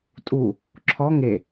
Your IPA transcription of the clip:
tʼ u | ǁʰ ɔ ŋ e

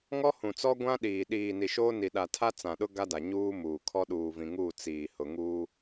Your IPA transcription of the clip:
ŋ ɔ˦ h ũ˨ t͡s ɔ˦ ɡʷ ã˦ ɗ iː˨ ɗ iː˨ n i˨ ʃ oː˦ n i˨ ɗ a˨ tʰ a˦ t͡s ã˨ ɗ ʊ˦ ɡ a˦ d a˨ ɲ uː˦ m uː˨ kʰ ɔ˦ ɗ uː˨ v ĩ˨ ŋ u˦˨ t͡s iː˨ h ʊ˨ ŋ uː˦

